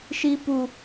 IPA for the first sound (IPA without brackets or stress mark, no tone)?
ʃ